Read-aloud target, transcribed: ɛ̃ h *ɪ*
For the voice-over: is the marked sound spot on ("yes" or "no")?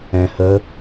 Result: no